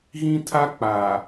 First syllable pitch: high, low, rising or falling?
high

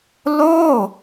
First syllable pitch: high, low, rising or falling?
falling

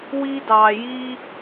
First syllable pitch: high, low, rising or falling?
high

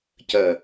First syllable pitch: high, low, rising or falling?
low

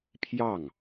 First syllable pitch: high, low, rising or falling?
falling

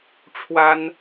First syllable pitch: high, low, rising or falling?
high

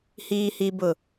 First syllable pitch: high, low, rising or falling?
high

